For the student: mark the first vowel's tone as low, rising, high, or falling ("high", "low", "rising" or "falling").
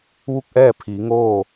falling